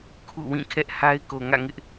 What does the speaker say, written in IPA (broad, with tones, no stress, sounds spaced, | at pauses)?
kʰ ṵ˦˨ w ĩ˦˨ kʰ ɛ˦ ʔ h a˦ ɪ̯ k o˨ ŋ ä̰˦˨ ŋ ɪ˦ ʔ